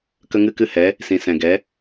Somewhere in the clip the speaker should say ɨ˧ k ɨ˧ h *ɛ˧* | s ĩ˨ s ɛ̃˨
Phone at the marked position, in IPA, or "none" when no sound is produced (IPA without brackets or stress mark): ɛ˨˦